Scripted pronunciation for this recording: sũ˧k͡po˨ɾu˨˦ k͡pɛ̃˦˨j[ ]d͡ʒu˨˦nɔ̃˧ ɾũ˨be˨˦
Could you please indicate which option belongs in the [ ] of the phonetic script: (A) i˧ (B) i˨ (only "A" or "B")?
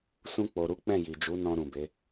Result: B